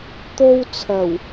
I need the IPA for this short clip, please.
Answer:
t̪ o˥ w t͡sʰ ɐ˨˩ w

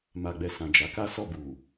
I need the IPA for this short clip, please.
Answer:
m a˨ ɡ͡b ɛ˨ s ã˨ d͡ʒ a˨˦ k a˦ s ɔ˦˨ b u˨

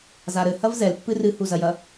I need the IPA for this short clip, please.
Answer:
z a ɾ ɘ h ɐ v z ɛ l pː ɨ r ɨ h u z ɐ j ɐ

